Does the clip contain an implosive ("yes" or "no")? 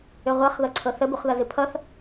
no